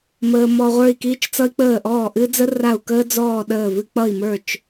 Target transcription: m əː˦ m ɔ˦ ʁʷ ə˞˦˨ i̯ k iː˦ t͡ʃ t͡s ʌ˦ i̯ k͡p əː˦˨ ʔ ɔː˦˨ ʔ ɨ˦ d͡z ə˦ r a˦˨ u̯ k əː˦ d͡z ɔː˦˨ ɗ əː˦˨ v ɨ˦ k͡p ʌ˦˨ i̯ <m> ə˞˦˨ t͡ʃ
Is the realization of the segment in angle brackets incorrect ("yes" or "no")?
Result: no